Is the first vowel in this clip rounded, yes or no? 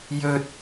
yes